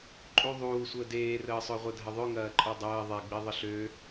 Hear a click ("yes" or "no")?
yes